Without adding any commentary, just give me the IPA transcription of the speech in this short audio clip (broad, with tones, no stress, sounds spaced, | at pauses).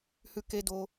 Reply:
h ʉ˧ k e˧ d o˧